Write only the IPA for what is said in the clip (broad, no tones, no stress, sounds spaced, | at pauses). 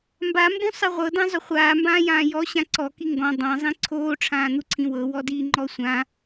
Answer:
m b a m b ũ sˤ ɨ ʁʷ ɤ d ã zˤ ʏ χʷ aː m b ãː j ãː j ɔ ɕ ã ǀ ɔ k i ŋ ɡ ɔ̃ dˤ ã zˤ ĩ ǀʰ oː ʈ͡ʂʰ ãː n̪ u ǀʰ ĩ w ɤ w ɔ d iː ŋ͡ǃ ɔ sʷ ã